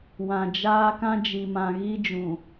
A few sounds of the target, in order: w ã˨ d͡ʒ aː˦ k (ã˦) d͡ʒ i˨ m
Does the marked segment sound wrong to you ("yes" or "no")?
no